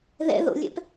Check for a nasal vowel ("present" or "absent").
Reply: absent